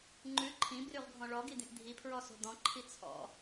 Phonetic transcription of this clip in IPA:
ŋ͡ǃ ʉ ǃʰ ĩ b r ʉ ʁ ɡʱ ɔ̃ ɭ ɔ ɡ i d̪ ĩ ʔ dʱ i pʰ ɹ ɔ s o̤ d̪ ɔ̃ ǃʰ i t͡sʰ ɔ̰

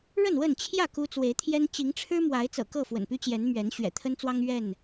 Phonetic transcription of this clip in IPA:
ɻ ə˥˨ n w ə˥˨ n t͡ɕʰ j ä˥˨ k u˦ t͡s w e˨˦ ɪ̯ t̪ʰ j ɛ˦ n t͡ɕ i˨˦ ŋ ʈ͡ʂʰ ɻ̩˦ m w a˨˦ ɪ̯ t͡s ɤ̰˨˩ k ɤ˥˨ f w ə̰˨˩ n p y˦ t͡ɕ j ɛ˨˦ n m ɥ ɛ˨˦ n ɕ ɥ ɛ̰˨˩ t̪ʰ ə˦ n t͡s w ɑ˦ ŋ ɥ ɛ˥˨ n

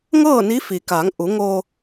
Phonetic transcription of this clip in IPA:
ŋ ɤː˥˨ n i˧˥ f i˩ k a˩˧ ŋ ʔ u˩˧ ŋ o˧

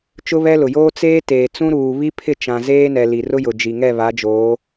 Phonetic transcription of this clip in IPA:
t͡ʃ ʊ˦ β ɛ˦ l ʊ˨ j oː˦ t͡s eː˦ t eː˨ t͡s ũ˦ ɾ uː˨ β i˦ pʰ ɪ˦˨ t͡ʃ ã˨ z eː˦ n ɛ˨ l i˨ r ʊ˦ j ʊ˨ d͡ʒ i˨ ŋ ɛ˦˨ β a˨˦ d͡ʒ oː˨˦

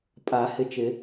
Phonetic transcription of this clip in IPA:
pʼ a˨˩˦ h ɪ˨ t͡ʃ ɪ˨˩˦

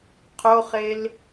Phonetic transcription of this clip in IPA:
qʰ o χ e l

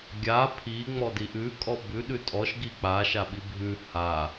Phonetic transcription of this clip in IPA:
ɡʲ a pʰ i ŋ͡m ɔ d i ʔ ʉ kʼ ɔ b ʉ ɗ ʉ tʼ ɔ ʃ ɡ i k͡p a ʃ a ɓ i bʱ ʉ h a

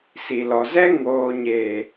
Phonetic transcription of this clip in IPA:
s i˨ l ɔ˨ z ɛ˦ ŋ oː˨ ɲ e˨

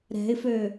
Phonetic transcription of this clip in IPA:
ɾ ɛ̤ ɪ̯ f ø

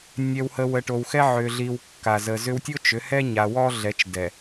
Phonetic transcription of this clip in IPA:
nʲ ɛ˨ w h ə˨ w ə˨ ʈ o˨ w x ɛ˦ ʕ ʏ˨ ɮ i˨ w kː a˨ z ə˨ z ʏ˦ w tʲ o˦ t͡ʃ ʏ˨˦ h ɛ˦ ɲ a˨ w ɔ˦ ɮ ɛ˨˦ t͡ʃ d ɛ˨

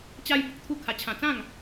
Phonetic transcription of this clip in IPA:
t͡ɕ a˦ j b ə˦ k̚ t̪ʰ u˦ kʰ a˧ t͡ɕʰ ã˧ t͡s ã˥˧ ŋ

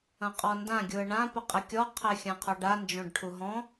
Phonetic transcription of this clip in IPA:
ɐ̃ qʼ ɔ n d ã ɡʲ u ə̯ ɳ ã p ɘ qʼ ɘ kʲ ɔ qʰ ɛ xʲ ã qʰ ɔ ɖ a n d͡ʒ õ ɖ ʈʰ u ɦ ɔ̃

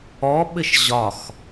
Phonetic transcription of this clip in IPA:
ɔ ɓ ɘ ʃ ʑ ɒ x

